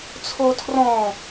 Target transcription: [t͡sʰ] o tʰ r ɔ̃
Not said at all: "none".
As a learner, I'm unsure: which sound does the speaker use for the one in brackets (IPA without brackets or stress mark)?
t͡sʰ